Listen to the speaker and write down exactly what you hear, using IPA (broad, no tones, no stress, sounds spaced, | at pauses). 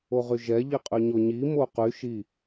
o ʁ y ʒ ɛ ʎ i qʼ y ɲ o ɲ i m o q y ʃ i